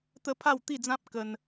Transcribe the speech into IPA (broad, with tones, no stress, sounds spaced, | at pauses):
t̪ ə˦ pʰ a˥˧ w t̪ i˥˧ d͡z ã˦ p̚ k ə˧ n